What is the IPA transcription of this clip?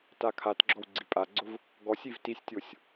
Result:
t a kʰ a t ɡ͡ǁ ɔ w ɡ͡ǀ i pʼ a ɡ͡ǀ ʊ v | ɡ ɔ sʲ i v t i sʲ tʲ o sʲ

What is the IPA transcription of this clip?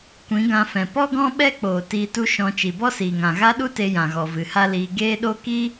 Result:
kʷ ĩ˨˦ ɡ ã˧ f ɛ̃˨ p ɔ˦ ɡ ɔ̃˦ ɓ ɛ˦ k͡p oː˨ t iː˧ t u˦ ʃ ɔ̃˧ t͡ʃ i˨ b ɔ˦ s iː˨ ŋ ã˨ ɣ a˦ ɗ u˦ t e˧ j ã˨ ɣ ɔ˨ v ɨ˨ h a˦ l iː˧ ɡ eː˦ ɗ o˦ k i˦

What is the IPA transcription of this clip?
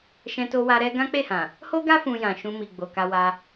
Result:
ʃ ɛ̃˧ t o˧ w a˧ ɾ ɛ˦ ɡ ã˦ k͡p e˦˨ h ã˨ | h o˦ ɡ a˦ f ũ˧ j ã˨ ʃ ũ˧ m i˨ ɡ͡b o˨ k a˧ w a˧

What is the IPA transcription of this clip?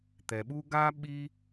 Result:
t̪ ɛ˩ ɓ u˦ ɡ a˦ ɓ i˦

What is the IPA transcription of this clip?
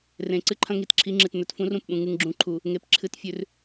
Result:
r ẽ˨ ǀ ɨ˦ ǃʰ ɐ̃˦ ŋ i˨ t ǁʰ i˨˦ ŋ͡ǁ ɨ˨ t n̪ ɵ˨ t f ũ˦ r ũ˨ p ɓ ũ˨ ŋ ɨ˨ ŋ ɡ͡ǁ ũ˨ ǃʰ u˨ | ŋ e˨ p ǁʰ ɨ˨ t fʲ ʉ˨ r

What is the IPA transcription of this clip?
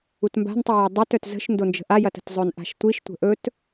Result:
u t m b a̤ n tˤ i j a dˤ y t œ t z ə̤ ʃ n d o n d͡ʒ ə̤ ʔ a j ɐ t ə̤ t zˤ ɵ n ʔ a̤ ʃ tʷ i ʃ tʷ ə̤ ʔ ɵ t

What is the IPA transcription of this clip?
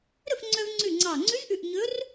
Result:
ɾ ɵ˥˩ f ŋ͡ǀ œ˧ v ŋ͡ǀ ʉ˧˩ ŋ͡ǀ ɑ˧˩ ŋ͡ǀ ʉ˧˥ z ʔ ʉ˧˩ ʔ ɲ ɵ˧˥ r

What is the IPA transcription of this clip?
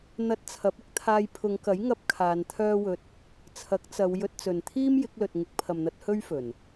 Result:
n̪ ɐ˧ t̚ t͡sʰ ɐ˨˥ p̚ ɪ˥ k̚ t̪ʰ aː˧ j pʰ ʊ˨˧ ŋ k ɐ˨˥ j ŋ ɐ˧ p̚ kʰ aː˨˧ n t̪ʰ œː˥ w ɵ˧ t̚ | t͡sʰ ɐ˨˥ k̚ t͡s ɐ˨˧ w j ɵ˧ t̚ t͡s ɵ˨ n t̪ʰ iː˥ m j ɪ˨˥ k̚ l ɵ˨ t̚ ŋ ɪ˨˥ k̚ pʰ ɐ˨ m n̪ ɐ˧ t̚ h ɵ˥ ɥ f ɵ˨˩ n

